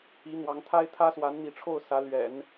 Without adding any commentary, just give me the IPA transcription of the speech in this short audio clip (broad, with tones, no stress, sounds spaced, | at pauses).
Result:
i˧˥ n̪ w ɑ˧˥ ŋ t̪ʰ a˥ ɪ̯ t̪ʰ ä˥ s w a˧˥ n n̪ i˧˥ ʈ͡ʂʰ o˥˩ ʊ̯ s ä˧˥ l ɥ ɛ̰˨˩˦ n